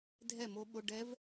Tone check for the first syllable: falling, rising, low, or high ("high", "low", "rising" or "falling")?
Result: falling